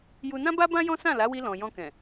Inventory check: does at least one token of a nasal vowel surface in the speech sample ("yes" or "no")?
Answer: yes